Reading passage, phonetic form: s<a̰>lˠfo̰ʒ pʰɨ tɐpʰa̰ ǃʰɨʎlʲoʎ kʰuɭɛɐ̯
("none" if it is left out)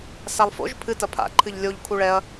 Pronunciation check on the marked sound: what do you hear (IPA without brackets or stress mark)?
a